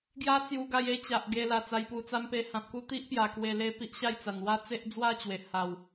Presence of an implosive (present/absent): absent